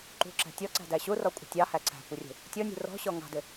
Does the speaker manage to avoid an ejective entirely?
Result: no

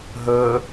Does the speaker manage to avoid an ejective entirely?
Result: yes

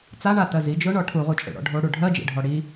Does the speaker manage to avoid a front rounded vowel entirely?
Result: yes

